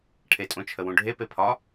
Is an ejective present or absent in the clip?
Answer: present